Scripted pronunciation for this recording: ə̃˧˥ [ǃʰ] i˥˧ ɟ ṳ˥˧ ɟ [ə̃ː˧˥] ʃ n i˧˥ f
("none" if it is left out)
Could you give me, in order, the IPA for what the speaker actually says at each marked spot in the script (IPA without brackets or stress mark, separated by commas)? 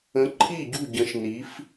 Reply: ǃʰ, ə̃˧˥